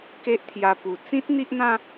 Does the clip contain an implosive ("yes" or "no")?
no